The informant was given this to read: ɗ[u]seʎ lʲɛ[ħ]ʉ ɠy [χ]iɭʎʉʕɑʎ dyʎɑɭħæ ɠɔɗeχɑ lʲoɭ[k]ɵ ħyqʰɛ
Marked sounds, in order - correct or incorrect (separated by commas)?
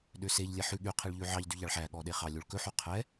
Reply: incorrect, correct, incorrect, correct